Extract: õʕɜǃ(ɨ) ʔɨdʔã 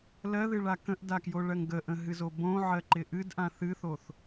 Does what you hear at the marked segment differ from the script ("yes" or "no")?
yes